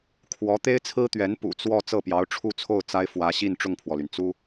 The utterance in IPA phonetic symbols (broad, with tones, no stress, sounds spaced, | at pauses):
kʰ w ɔ˧˥ t̪ e˥ ɪ̯ t͡sʰ ɹ̩˥ t̪ ɥ ɛ˧˥ n p ṵ˨˩ t͡s w ɔ˥˧ t͡s ɤ˥˩ p j ɑ˧˥ ʊ̯ ʈ͡ʂʰ u˥˧ t͡sʰ o˥˩ ʊ̯ t͡s a˥ ɪ̯ f w ä˧˥ ɕ i˥˧ n ʈ͡ʂ ʊ˥˩ ŋ pʰ w ɔ˩ l y˩ n t͡s u˥